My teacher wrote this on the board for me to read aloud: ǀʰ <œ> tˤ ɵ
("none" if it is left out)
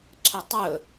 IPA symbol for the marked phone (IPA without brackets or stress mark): ɵ